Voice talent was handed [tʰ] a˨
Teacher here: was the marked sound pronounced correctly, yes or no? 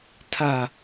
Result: yes